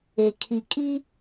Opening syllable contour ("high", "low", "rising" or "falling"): low